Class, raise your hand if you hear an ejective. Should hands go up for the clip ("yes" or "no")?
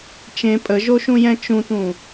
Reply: yes